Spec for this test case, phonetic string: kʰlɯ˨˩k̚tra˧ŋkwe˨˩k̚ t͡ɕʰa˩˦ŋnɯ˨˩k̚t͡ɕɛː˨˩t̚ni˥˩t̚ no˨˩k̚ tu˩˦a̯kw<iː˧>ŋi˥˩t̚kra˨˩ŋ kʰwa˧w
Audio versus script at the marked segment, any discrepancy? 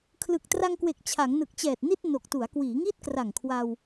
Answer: yes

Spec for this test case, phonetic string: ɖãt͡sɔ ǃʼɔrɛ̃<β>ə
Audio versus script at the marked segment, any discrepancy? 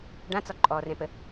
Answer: yes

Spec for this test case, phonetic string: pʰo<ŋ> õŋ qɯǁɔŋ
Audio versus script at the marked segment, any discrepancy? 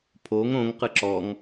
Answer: no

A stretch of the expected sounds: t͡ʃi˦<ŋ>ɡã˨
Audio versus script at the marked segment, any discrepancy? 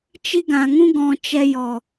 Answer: yes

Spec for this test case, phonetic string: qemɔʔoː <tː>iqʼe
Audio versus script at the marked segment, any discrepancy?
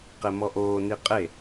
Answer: yes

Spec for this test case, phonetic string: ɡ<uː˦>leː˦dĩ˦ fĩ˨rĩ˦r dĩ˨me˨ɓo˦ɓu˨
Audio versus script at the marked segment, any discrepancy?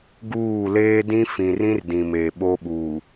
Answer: yes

